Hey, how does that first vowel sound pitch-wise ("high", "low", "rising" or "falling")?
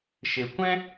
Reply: low